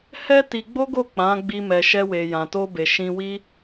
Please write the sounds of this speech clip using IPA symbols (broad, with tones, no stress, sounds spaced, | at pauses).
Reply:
h ɛ˦ t i˧ ɡ͡b o˦ ɡ o˦˨ k͡p ã˨˦ ɡ͡b i˧ m ɛ˨ ʃ ɛ˧ w e˨ j ã˨ t o˧ b e˨ ʃ ĩ˧ w i˦